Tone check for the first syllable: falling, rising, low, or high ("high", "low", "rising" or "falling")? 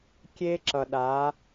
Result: high